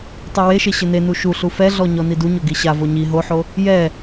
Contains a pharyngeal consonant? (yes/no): yes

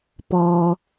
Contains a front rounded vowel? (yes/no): no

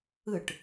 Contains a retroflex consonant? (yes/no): yes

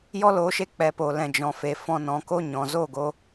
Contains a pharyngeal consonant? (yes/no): no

